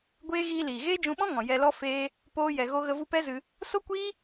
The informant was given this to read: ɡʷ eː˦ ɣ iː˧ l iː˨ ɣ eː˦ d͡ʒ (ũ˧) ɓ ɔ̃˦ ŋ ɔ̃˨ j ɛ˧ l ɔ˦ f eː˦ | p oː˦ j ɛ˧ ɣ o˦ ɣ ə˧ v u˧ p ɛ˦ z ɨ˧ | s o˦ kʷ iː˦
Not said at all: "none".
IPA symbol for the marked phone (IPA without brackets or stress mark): ũ˧